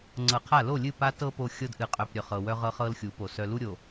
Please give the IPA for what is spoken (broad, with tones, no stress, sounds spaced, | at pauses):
ŋ͡ǀ ɤ˨ qʰ a˦˨ l o˦˨ lʲ ɨ˦˨ p a˦ t ɤ˦ p o˨ xʲ ɤ˦ d ʔ ɨ˨ qʼ œ˨ p ɾʲ œ˨ χ ɤ˨ w œ˦ ʁ ɤ˦ χ ɤ˦ l xʲ u˨˦ p o˨ s œ˨ l u˦ ɾʲ o˨